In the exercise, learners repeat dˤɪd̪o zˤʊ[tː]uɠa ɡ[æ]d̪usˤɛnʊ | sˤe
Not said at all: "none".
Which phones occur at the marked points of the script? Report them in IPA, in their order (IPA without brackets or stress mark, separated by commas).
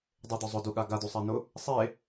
d, a